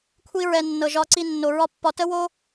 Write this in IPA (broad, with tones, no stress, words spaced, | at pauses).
kʷʰi˧ɹɛ˨ nːɤ˨ʒɒ˧ǀi˧ nːo˨ɹɒ˦pːɒ˧ tə˦wo˦